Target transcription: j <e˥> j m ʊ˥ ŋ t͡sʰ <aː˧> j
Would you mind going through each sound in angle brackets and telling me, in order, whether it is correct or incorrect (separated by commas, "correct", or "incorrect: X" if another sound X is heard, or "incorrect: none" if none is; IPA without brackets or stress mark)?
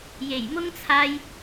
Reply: incorrect: e˨˩, correct